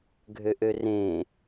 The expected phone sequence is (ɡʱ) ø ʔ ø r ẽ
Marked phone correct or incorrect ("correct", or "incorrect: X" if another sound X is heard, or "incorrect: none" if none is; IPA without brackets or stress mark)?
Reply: correct